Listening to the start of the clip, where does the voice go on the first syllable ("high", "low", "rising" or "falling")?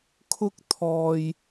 high